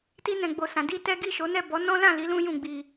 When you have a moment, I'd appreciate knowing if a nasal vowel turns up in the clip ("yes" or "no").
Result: yes